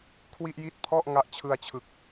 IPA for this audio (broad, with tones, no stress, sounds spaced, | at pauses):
kʰ w i˥˩ ʔ j i˥˩ t̚ pʰ ɔ˥˩ ʔ ŋ a˦˥ ʔ t͡ɕʰ ɯ˧ a̯ t͡ɕʰ ɯ˨˩ k̚